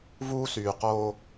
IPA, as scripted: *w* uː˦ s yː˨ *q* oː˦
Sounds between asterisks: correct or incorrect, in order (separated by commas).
incorrect, correct